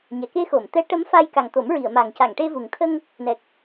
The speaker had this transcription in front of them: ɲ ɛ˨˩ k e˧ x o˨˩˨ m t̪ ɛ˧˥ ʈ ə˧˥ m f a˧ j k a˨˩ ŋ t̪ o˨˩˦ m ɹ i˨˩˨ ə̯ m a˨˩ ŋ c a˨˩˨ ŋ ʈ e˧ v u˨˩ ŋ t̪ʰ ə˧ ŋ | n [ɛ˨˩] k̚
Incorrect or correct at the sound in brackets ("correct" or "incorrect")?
correct